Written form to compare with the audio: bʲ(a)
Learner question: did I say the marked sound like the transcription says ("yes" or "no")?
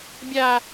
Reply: yes